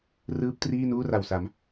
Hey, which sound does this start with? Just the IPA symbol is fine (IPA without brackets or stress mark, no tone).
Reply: r